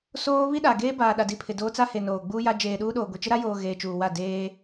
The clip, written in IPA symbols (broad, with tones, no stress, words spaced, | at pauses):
soː˦ βi˦ɗa˨ɡeː˦baː˨ ɗa˨di˨ pʰɪ˨doː˦t͡sa˦he˨ noː˨ɡ͡buː˦ja˦ d͡ʒeː˨ɗuː˦ɗoː˨ɡʷi˨ t͡ʃɪ˦ɾa˦joː˨ ɣeː˨t͡ʃuː˨wa˦˨ deː˦